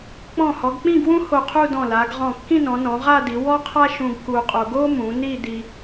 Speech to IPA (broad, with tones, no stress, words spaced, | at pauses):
k͡pɔ̃˧˩hɔ˩˧ɡk͡pĩ˥˧ɡwũ˥ ho˧˩qʰu˥˧dɔ̃˧˩la˩˧ɡ ʁɔ̃˧˩kːĩ˥˧nɔ̃˩˧nɔ̃˩˧ ʁa˥˧di˩˧ wɔ˥qʰa˥ʃũ˧ɡ ku˧qʼo˧ ɡo˥mũ˩˧ ni˥˧di˧